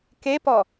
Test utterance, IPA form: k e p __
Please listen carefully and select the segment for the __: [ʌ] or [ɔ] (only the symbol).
ɔ